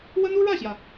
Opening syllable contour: high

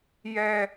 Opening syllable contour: high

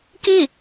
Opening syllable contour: falling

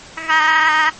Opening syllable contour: high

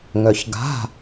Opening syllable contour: low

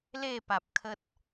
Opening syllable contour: falling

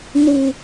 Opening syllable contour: high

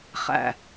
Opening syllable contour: low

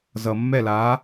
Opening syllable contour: low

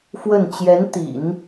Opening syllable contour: falling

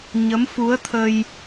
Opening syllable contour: rising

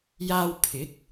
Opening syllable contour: high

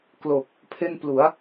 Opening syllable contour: low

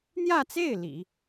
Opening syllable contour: falling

